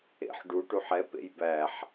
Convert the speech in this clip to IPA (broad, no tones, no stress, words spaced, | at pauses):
ḛħ ɖu ʈuħɛ pḛjbæħ